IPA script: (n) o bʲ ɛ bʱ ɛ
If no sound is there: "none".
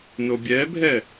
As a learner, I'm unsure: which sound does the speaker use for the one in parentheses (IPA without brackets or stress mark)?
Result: n